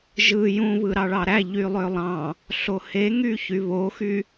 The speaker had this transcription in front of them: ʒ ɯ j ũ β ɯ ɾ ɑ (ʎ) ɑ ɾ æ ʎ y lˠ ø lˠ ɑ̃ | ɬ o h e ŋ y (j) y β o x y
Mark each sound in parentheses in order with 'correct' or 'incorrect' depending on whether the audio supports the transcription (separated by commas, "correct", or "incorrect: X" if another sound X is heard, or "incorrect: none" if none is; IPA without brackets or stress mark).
incorrect: ɭ, incorrect: ç